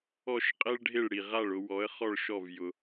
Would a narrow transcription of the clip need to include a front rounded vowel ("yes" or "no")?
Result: no